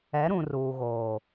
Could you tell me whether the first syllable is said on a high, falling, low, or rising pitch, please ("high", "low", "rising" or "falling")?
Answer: rising